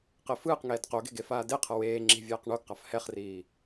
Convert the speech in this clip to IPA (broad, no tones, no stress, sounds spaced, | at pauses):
q e f ɯː q ŋ ɛː d q o ɡ e̤ ɡ e f aː d e qʰ ʌ w eː ŋ͡ǁ i̤ vʲ ɛː q ɳ o ɡ q a f h ɛ χ r iː